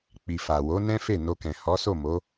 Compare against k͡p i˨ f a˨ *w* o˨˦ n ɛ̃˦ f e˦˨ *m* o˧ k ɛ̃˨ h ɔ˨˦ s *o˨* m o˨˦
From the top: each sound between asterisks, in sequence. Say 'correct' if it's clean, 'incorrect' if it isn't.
correct, incorrect, incorrect

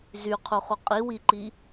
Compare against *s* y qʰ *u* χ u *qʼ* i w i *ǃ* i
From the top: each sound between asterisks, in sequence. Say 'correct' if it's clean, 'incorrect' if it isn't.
incorrect, correct, correct, correct

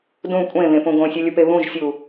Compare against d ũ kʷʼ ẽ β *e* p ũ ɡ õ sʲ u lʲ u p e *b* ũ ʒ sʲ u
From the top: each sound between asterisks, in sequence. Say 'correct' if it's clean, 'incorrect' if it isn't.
incorrect, incorrect

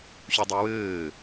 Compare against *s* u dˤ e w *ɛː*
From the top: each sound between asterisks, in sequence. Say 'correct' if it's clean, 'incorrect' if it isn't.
incorrect, incorrect

